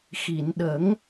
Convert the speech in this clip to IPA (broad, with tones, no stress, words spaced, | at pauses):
xi˨˩˨nɗə˨˩˦ŋ